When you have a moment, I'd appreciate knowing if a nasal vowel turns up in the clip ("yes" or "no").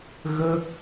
no